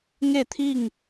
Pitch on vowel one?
falling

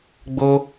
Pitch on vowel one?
high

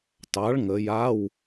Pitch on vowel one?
rising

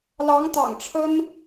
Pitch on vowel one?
rising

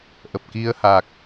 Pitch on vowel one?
low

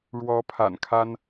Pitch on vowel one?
rising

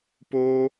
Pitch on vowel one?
high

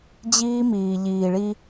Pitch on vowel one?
high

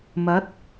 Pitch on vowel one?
rising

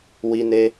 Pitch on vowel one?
high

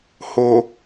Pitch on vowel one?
low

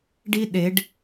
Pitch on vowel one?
high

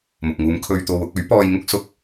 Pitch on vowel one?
low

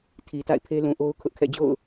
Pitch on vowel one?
low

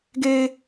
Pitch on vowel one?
high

